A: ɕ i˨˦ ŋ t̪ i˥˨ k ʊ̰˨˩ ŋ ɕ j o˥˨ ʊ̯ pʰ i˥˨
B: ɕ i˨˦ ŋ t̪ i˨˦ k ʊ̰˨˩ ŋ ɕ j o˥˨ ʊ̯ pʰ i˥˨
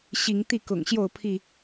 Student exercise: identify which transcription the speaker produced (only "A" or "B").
A